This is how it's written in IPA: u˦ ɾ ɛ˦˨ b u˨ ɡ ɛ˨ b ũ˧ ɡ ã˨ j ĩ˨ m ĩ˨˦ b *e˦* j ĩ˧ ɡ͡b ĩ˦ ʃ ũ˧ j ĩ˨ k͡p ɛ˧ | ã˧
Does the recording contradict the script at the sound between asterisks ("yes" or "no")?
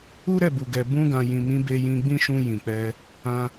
yes